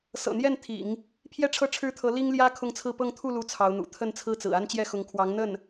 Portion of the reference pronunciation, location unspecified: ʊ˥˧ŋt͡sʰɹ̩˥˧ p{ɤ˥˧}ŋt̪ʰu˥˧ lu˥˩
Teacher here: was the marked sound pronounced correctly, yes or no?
yes